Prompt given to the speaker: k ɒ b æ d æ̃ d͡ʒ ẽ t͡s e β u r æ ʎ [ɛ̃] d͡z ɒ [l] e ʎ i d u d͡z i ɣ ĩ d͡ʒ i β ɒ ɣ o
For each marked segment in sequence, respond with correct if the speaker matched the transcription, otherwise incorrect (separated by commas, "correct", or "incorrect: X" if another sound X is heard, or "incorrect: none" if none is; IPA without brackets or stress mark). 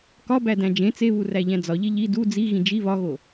incorrect: æ̃, incorrect: ʎ